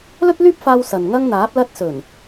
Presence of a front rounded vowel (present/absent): present